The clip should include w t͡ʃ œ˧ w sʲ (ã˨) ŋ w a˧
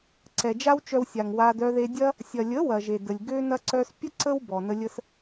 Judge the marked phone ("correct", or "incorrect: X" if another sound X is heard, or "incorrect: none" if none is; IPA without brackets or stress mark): incorrect: a˨